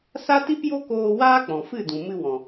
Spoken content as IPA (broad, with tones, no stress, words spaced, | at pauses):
sa˦ti˦pjo˦koː˧ waː˦k͡pɔ̃˨fɨ˦˨dũ˨ mɨ˧wɔ̃˨